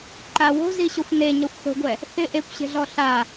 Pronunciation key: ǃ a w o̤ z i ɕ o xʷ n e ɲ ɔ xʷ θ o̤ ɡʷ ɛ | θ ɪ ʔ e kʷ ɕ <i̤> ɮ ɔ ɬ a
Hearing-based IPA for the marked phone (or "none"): e̤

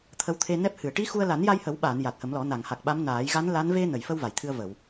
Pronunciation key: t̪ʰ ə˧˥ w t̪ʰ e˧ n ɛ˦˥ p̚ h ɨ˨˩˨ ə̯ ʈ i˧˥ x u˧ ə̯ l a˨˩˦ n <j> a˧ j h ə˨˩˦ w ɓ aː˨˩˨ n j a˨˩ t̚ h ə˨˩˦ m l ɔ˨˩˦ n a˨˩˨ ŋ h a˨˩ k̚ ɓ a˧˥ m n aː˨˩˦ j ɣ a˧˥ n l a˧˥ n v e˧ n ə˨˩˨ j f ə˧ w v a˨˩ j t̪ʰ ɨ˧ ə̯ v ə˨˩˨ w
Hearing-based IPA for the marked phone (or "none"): j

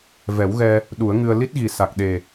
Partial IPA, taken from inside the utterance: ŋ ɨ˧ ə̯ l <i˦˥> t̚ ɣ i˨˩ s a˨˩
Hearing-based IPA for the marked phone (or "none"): i˦˥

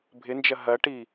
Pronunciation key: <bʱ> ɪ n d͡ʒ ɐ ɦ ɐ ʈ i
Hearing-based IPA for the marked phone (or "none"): bʱ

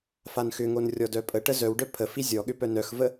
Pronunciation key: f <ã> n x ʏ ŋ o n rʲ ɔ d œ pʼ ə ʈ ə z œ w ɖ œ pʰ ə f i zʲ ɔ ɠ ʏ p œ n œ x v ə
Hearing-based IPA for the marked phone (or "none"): a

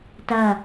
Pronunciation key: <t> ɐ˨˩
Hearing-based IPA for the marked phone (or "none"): t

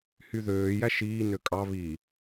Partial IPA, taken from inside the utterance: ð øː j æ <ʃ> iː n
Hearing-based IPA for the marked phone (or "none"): ʃ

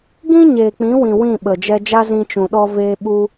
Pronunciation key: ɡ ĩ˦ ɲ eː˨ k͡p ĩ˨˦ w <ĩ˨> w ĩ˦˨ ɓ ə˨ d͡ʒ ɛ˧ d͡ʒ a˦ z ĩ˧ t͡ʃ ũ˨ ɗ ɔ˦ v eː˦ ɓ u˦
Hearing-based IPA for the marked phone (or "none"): ĩ˨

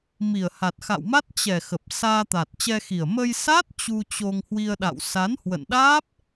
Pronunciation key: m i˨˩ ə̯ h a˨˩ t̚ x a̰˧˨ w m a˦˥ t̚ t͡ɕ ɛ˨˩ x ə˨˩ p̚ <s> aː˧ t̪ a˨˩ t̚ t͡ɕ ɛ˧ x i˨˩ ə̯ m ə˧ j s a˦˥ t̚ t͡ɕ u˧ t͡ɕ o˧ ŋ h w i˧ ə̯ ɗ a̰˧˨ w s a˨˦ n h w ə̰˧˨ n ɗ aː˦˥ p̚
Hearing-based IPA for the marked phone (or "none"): s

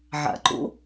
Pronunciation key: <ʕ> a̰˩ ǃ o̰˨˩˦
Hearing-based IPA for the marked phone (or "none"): ʕ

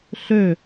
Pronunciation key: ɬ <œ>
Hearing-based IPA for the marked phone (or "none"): ø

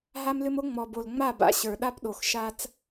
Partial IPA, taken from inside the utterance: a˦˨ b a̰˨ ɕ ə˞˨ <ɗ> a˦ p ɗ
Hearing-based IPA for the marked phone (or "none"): ɗ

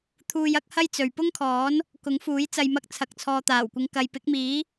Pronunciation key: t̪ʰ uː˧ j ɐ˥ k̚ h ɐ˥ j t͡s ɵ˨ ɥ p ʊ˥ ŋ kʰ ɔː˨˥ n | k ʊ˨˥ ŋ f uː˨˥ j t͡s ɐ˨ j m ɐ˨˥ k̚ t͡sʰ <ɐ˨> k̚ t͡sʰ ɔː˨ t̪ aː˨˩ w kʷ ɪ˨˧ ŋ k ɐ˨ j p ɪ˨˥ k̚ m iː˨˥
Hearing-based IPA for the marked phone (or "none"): ɐ˨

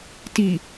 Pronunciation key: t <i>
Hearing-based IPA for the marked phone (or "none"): i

